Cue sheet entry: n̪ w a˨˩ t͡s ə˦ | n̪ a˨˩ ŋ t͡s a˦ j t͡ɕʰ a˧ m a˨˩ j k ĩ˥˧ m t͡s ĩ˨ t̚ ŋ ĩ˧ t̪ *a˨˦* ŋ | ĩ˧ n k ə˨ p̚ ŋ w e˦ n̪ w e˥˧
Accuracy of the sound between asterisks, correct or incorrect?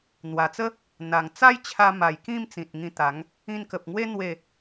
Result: correct